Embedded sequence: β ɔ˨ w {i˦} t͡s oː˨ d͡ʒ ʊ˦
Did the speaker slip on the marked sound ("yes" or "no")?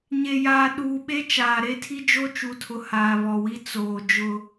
no